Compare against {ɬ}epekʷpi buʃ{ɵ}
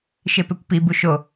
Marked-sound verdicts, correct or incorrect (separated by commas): incorrect, incorrect